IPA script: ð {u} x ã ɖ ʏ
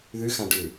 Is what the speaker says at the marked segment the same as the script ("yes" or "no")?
no